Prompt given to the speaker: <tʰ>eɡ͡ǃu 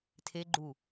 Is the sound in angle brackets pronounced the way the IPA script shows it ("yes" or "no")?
yes